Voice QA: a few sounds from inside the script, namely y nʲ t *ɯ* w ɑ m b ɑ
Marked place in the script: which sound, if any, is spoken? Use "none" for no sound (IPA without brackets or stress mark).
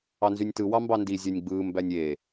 ɯ